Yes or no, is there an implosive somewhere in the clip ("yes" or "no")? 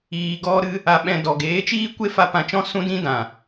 yes